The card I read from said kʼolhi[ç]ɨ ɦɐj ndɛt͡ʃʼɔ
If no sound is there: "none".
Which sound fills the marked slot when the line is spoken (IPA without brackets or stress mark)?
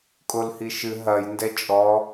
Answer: ʃ